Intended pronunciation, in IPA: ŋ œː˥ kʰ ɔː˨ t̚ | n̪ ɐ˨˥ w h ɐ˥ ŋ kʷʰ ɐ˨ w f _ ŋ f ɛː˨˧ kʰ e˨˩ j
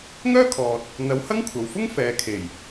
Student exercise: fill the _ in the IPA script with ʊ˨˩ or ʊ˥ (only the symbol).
ʊ˥